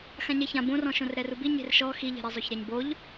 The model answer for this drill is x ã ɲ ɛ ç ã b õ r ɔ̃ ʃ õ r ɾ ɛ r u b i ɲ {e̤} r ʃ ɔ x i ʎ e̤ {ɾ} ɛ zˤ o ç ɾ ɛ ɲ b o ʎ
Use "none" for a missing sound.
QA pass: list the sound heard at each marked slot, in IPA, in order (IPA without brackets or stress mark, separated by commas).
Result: e̤, ɾ